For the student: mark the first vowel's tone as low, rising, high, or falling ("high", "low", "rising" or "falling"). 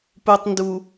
low